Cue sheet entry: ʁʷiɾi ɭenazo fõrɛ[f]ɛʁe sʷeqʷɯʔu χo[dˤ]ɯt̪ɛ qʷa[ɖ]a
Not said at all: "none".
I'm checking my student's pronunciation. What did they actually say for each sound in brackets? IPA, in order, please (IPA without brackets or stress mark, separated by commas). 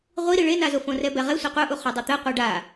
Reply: b, dˤ, ɖ